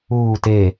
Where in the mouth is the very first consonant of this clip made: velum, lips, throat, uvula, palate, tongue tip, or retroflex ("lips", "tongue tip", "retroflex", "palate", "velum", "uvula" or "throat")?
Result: tongue tip